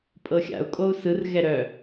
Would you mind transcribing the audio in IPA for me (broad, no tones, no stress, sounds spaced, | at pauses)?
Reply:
pʼ ɤ xʲ a̰ u̯ kʼ o u̯ s ɯ r ɣ ɛ ɾ œ